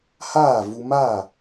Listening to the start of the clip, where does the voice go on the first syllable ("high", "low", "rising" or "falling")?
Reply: falling